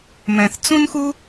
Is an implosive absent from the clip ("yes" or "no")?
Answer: yes